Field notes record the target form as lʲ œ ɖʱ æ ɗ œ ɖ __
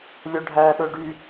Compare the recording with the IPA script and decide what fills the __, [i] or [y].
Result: y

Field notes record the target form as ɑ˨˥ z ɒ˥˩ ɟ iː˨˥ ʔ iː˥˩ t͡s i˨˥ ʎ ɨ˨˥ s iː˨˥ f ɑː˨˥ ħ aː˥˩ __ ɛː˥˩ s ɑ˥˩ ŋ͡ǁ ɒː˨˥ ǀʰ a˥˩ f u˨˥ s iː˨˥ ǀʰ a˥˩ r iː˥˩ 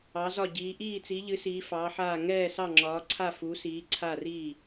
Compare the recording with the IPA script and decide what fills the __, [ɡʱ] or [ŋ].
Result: ŋ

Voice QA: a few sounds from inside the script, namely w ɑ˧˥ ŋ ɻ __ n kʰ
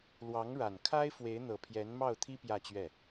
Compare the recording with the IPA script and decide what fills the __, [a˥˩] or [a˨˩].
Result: a˨˩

